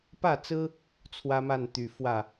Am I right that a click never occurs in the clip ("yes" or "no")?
yes